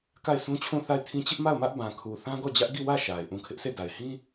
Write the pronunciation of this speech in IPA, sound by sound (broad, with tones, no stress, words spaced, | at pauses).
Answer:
ka˦˨ɪ̯sʰũ˦t͡ɕʰũ˦˨ θa˦˨ɪ̯tʰĩ˦ t͡ɕɪ˦ʔma˦˨ʊ̯mä˦ʔ bã˨kʰu˨ θã˦ɡɔ˦˨d͡ʑä˦ʔ ɡi˦˨wä˦˨ ʃa˨ɪ̯ ʔũ˨ kʰɪ˦ʔse˦˨da˨ɪ̯ hĩ˦